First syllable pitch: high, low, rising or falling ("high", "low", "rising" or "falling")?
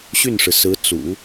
falling